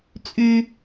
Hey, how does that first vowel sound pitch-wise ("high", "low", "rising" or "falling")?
high